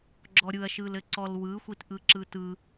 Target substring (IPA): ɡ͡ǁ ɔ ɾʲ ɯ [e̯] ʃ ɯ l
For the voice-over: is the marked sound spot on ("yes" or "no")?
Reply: no